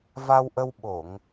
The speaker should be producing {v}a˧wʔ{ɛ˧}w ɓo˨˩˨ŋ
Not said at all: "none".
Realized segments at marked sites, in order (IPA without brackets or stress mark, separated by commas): v, ə˧